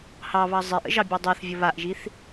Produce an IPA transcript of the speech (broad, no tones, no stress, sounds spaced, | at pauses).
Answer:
h ɑ β ɑ zˤ i ʔ ə̰ ʒ ɑ bʲ a dˤ ɑ θ vʲ ə β a ʔ ʒ i θ